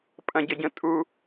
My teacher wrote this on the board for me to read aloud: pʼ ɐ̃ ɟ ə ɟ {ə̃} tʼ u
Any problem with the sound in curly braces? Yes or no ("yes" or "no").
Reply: no